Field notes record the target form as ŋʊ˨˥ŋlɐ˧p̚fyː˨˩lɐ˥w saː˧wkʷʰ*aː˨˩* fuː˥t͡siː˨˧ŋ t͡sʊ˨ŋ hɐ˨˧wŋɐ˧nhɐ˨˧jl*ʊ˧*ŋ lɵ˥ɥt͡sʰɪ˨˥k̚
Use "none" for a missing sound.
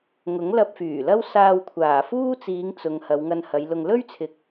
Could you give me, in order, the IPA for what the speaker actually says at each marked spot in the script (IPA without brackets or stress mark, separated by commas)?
aː˨˩, ʊ˧